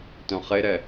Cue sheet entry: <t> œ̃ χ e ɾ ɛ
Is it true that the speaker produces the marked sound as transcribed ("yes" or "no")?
yes